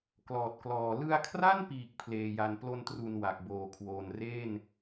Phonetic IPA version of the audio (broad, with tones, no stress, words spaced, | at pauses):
klɔː˨˩t̚klɔː˨˩ lɯ˧a̯kʰra˥˩npiː˨˩k̚ pʰleː˧ja˧n plo˧ntru˨˩n wa˨˩k̚boː˨˩kʰwoː˨˩n re˥˩n